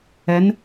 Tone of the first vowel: rising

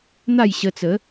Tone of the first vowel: falling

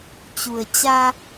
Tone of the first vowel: low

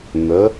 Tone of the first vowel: rising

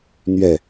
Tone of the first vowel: falling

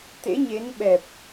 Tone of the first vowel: rising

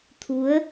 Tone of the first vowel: rising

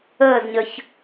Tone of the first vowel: falling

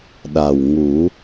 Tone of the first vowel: low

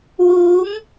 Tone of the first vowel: rising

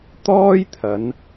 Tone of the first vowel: high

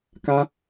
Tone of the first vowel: high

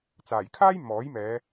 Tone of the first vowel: low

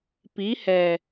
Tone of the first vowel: rising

